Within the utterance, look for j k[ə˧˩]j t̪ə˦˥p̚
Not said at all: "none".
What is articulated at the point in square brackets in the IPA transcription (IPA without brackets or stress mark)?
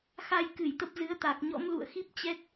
ɨ˧˩